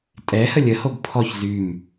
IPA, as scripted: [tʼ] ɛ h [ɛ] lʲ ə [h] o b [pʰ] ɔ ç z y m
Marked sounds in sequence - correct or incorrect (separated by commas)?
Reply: correct, incorrect, correct, correct